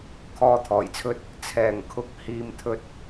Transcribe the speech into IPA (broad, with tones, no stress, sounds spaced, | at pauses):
kʰ ɔː˧ t̪ʰ ɔː˨˩ j t͡sʰ ɵ˧ t̚ | t͡sʰ ɛː˨˩ ŋ kʰ ʊ˨˥ k̚ h iː˧ m t̪ʰ ɵ˧ t̚